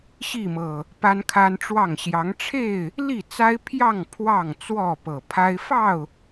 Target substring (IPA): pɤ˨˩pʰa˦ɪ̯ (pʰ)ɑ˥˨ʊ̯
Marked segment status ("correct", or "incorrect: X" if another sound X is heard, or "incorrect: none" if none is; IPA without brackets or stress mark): incorrect: f